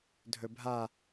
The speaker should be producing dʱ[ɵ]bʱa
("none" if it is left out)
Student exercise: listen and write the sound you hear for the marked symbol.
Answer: ɵ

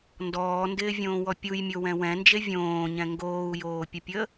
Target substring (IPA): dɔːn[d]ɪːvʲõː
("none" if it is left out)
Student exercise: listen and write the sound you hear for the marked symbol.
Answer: d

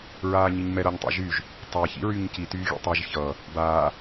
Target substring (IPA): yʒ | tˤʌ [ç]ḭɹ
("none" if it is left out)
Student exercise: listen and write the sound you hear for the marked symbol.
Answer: ç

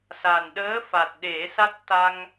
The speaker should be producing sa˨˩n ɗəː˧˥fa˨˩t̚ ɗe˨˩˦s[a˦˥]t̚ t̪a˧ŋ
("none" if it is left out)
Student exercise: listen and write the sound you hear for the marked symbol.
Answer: a˦˥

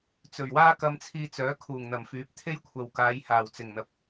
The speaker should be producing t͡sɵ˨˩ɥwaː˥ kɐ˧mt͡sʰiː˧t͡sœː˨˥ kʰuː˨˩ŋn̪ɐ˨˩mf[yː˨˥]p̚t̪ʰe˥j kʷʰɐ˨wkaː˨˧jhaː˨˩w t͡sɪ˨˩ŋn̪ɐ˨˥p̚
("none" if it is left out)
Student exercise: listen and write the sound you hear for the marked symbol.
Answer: yː˨˥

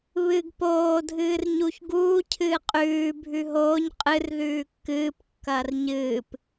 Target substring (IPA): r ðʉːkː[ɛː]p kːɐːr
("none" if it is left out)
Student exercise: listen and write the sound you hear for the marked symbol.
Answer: ɨː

